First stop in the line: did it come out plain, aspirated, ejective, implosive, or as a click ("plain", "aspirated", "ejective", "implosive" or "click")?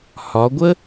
plain